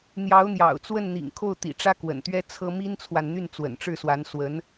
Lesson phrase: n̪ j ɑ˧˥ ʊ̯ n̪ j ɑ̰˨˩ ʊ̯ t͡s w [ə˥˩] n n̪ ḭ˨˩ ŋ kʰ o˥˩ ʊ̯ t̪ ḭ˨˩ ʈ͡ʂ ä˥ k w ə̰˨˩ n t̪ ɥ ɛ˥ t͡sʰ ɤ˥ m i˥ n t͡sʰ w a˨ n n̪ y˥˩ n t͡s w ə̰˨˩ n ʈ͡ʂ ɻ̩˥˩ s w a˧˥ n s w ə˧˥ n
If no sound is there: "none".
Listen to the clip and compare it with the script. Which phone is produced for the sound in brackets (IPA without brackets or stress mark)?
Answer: ə˥˩